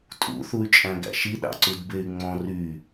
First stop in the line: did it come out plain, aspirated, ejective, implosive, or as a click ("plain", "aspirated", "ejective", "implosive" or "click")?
ejective